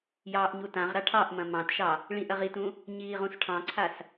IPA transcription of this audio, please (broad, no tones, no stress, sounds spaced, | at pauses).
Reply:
j ɑː ʔ ɲ u t ã ʁ ɾ a ʈʰ ɑ ʔ m ɐ̃ m ɑ̃ t ʃ ɑ | ɭ ĩ ʔ ɐ ʁ i t ũ | ɲ iː ʁ ũ s ʈʰ ɑ̃ ǀʰ a s